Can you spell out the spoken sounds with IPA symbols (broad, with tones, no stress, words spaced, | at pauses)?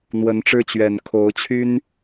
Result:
n̪wə˨˦nʈ͡ʂɻ̩˦t͡ɕɥɛ˨˩n kʰo˨˦ʊ̯t͡ɕʰy˦n